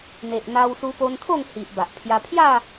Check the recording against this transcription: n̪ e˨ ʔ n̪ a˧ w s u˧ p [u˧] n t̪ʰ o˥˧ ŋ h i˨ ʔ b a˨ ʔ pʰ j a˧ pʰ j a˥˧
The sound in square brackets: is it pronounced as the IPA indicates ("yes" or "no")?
no